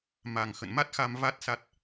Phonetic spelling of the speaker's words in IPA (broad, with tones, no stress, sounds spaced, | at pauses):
m a˨˩ ŋ x ə̰˧˨ n m a˦˥ t̚ x a˧ m v a˦˥ t̚ s a˦˥ t̚